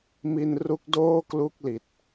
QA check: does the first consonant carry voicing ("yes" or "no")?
yes